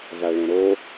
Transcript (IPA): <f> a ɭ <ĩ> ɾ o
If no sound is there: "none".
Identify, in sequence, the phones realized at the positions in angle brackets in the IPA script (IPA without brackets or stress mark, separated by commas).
v, ẽ